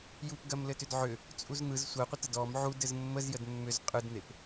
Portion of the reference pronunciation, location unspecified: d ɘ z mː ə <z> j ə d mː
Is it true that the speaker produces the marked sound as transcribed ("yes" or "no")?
yes